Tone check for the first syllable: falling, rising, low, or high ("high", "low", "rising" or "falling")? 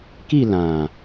falling